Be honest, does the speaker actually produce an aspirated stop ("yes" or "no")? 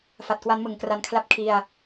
yes